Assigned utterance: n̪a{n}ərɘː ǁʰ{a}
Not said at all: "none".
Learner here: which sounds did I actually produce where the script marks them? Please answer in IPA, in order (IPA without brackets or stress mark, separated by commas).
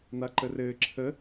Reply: ǃ, ə